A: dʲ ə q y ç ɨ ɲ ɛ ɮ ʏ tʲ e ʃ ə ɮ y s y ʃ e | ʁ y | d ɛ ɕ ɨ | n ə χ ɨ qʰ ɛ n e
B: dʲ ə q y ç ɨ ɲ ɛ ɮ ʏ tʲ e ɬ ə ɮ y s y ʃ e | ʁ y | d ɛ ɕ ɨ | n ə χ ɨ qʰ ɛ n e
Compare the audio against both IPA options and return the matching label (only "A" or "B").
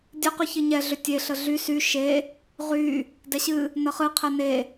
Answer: B